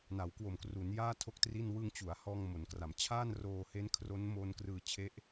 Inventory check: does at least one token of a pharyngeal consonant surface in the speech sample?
no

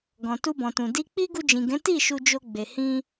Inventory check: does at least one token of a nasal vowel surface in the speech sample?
yes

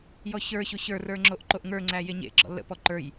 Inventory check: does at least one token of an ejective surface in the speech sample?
no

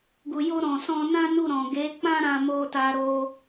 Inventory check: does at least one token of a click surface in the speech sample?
no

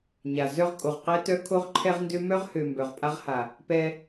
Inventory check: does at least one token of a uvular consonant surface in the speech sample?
yes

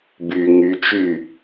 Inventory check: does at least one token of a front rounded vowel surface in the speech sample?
yes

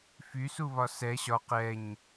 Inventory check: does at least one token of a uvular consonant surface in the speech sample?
yes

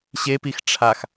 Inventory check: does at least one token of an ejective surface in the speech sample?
no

